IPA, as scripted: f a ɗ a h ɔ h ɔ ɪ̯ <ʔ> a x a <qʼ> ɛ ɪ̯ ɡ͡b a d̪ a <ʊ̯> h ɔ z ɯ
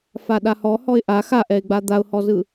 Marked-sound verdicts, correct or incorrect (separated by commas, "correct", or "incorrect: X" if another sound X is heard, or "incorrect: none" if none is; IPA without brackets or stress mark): correct, incorrect: ʔ, correct